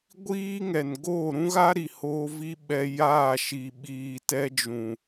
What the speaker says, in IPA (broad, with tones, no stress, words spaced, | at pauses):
ɡʷiː˦ŋɛ˨n ɡoː˦˨ɾũ˦ɣa˦ ɾi˨ hoː˧vi˧ ɓɛ˧ jaː˦˨ ʃi˨ ɓiː˨tɛ˧d͡ʒũ˨